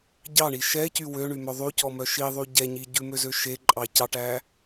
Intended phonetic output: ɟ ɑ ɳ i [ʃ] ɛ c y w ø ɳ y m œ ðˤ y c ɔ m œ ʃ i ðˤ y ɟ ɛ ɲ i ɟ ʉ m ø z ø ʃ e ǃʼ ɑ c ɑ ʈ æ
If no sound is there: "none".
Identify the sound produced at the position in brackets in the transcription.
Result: ʃ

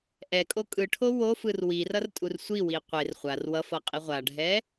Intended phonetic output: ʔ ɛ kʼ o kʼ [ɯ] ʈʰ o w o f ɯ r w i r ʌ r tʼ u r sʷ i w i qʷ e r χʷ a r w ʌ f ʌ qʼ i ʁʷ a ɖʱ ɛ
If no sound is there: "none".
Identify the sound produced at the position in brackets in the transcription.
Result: ɯ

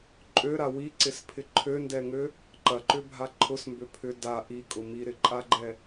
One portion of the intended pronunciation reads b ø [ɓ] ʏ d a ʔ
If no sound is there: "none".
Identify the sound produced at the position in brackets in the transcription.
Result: pʰ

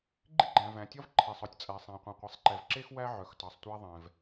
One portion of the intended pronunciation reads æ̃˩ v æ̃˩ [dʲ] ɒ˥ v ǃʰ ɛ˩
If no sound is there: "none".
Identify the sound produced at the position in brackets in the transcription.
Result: tʲ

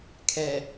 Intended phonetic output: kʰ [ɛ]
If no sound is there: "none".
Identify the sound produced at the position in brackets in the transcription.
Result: ɛ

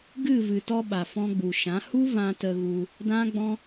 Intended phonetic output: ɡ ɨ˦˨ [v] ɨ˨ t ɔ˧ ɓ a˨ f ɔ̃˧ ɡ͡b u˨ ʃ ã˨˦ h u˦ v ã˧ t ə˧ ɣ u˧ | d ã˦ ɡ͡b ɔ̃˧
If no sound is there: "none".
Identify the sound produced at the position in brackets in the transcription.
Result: v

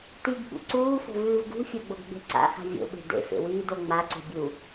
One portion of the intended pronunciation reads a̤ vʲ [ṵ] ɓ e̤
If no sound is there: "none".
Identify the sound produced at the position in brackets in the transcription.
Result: o̰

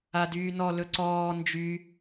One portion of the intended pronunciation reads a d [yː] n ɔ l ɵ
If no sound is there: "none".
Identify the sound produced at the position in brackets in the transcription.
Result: yː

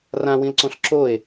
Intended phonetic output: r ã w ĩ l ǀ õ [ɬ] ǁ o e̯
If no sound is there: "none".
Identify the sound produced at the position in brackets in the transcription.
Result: ɬ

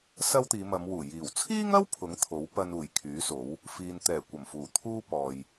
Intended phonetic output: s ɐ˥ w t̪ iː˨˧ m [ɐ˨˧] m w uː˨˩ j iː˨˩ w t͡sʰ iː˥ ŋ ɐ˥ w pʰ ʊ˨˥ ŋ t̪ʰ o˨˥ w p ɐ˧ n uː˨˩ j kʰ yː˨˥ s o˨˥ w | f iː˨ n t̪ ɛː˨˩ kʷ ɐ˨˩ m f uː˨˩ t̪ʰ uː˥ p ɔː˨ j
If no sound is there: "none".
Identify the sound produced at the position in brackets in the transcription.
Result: ɐ˨˧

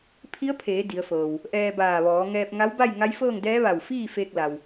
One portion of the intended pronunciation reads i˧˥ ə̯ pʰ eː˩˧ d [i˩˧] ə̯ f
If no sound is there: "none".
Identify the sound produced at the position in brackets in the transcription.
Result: i˩˧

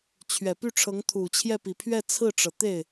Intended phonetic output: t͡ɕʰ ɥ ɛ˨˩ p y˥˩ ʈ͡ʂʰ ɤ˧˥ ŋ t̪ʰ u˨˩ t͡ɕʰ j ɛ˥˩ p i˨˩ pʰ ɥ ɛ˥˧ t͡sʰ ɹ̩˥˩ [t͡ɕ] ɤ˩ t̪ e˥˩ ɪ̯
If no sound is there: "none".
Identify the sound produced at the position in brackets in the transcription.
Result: ʈ͡ʂ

